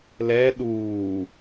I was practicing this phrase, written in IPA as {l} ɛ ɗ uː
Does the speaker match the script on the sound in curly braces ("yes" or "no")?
yes